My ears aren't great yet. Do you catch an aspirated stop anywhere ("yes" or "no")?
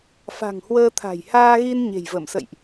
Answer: yes